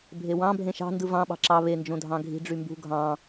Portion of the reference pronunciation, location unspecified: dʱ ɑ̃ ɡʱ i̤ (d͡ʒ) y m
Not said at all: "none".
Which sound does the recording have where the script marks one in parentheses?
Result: ɖ͡ʐ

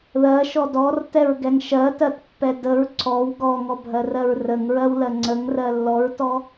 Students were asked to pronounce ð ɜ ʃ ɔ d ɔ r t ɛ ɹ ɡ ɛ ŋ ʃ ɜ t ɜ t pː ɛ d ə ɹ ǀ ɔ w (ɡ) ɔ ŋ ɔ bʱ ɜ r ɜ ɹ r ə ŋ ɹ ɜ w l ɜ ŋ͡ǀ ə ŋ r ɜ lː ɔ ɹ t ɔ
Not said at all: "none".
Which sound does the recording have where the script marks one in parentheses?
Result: ɡ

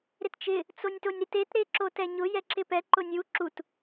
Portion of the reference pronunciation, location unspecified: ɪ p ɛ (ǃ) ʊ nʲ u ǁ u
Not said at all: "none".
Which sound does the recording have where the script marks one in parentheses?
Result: ǃ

